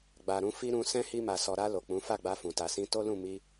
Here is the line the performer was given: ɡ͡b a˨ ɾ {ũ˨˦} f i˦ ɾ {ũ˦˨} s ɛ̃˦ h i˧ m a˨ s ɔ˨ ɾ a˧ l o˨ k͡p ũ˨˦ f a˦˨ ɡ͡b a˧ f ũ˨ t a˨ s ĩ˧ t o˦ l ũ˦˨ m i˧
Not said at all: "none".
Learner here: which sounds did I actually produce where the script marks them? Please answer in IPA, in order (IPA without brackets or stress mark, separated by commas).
ũ˨˦, ũ˧